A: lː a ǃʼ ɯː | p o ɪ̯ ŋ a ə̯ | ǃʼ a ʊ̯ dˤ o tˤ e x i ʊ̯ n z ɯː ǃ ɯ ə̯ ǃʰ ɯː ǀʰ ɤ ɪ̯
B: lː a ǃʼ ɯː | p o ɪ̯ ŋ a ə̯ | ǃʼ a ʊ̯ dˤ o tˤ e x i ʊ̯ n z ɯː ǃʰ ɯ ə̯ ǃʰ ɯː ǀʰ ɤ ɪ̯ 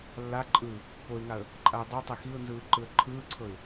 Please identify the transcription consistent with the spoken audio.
A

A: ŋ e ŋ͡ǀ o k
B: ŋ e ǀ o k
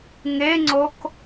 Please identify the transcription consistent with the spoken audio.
A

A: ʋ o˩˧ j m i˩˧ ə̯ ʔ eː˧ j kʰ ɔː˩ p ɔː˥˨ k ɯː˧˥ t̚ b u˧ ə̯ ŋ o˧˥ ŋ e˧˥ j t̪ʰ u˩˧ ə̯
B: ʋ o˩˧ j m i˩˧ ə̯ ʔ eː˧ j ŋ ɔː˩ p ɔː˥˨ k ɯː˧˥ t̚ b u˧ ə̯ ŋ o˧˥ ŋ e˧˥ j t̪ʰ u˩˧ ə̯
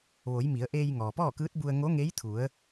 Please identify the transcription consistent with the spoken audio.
B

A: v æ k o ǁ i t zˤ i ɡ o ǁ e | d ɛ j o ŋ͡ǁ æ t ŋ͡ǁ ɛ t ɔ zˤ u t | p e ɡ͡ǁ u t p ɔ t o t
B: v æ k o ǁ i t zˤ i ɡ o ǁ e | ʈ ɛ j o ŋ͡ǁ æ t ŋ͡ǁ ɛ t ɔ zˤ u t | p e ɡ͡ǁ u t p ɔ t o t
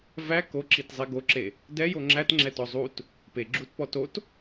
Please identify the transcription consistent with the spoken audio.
A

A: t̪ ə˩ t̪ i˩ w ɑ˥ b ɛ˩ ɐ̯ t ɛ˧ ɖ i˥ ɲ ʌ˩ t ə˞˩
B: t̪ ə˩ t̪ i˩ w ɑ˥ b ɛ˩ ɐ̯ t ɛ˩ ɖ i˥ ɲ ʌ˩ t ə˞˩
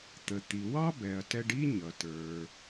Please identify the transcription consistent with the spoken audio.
A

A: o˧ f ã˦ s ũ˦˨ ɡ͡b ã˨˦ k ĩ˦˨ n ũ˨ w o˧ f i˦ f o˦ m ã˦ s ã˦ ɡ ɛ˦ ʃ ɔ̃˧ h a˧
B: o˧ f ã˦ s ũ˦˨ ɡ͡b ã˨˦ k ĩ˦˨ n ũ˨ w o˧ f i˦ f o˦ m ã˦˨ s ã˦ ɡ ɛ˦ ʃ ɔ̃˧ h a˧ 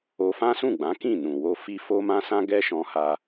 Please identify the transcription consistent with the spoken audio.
A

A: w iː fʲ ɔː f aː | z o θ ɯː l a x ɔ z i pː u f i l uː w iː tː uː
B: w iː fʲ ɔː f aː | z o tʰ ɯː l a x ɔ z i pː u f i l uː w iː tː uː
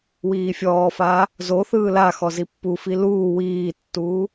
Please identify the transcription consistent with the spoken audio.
A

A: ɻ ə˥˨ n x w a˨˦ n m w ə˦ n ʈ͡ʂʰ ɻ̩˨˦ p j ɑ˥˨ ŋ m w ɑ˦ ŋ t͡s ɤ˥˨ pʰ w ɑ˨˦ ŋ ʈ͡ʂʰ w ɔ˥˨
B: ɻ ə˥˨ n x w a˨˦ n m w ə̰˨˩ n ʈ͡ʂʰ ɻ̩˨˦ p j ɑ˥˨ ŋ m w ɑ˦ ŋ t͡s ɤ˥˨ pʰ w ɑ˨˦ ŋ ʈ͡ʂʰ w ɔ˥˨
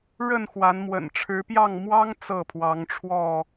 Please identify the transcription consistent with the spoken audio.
B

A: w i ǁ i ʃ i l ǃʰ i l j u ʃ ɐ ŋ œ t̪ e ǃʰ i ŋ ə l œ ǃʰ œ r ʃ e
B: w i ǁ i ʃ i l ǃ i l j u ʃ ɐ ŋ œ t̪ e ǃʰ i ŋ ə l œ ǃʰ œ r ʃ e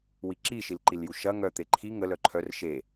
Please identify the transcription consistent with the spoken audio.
B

